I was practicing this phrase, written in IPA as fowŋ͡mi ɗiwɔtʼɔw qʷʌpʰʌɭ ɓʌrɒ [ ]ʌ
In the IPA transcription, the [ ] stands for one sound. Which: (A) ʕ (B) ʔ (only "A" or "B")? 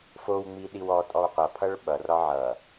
A